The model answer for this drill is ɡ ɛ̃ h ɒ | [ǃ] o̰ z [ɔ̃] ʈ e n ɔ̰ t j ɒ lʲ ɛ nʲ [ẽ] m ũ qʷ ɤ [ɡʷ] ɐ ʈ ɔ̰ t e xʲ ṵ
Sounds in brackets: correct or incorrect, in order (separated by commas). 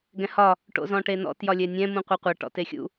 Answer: incorrect, correct, incorrect, incorrect